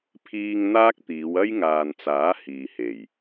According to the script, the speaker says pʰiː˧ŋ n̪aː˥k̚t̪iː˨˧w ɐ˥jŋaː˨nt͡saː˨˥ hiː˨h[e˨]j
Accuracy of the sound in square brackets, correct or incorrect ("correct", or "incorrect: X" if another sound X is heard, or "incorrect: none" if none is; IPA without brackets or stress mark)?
incorrect: e˨˩